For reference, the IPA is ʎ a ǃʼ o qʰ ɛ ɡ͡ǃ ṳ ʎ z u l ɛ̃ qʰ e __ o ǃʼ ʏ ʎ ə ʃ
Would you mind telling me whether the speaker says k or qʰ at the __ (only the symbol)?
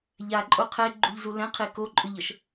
k